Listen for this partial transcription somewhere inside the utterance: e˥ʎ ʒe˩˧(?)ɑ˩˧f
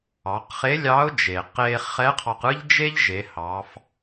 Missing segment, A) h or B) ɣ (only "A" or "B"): A